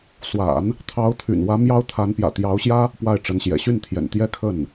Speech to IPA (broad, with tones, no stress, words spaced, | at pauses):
swa̰˨˩˦n | t̪ʰɑ˧˥ʊ̯t̪ʰy̰˨˩nwä˧˥ mjɑ˥ʊ̯t̪ʰa˧˥n pjä̰˨˩t̪jɑ˧˥ʊ̯ɕjä˥ | pwa˥˩ɪ̯ʈ͡ʂə˧˥nɕjɛ̰˨˩ ɕy˥˩n t̪ʰjɛ̰˨˩n t̪jɛ˥˧kʰə˥˩n